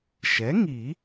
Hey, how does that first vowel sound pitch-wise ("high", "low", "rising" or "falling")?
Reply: rising